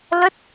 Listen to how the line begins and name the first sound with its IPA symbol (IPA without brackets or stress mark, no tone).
l